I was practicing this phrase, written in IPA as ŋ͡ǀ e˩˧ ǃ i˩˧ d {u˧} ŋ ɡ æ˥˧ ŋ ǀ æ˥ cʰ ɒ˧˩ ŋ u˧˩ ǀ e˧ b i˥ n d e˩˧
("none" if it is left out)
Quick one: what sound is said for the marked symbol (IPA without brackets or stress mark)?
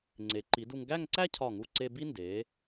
u˧